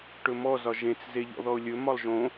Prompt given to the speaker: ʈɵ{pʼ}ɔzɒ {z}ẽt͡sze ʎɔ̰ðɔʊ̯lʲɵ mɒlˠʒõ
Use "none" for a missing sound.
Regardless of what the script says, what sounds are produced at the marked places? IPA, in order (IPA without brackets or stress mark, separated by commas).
m, ʒ